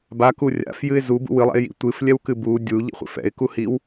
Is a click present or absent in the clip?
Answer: absent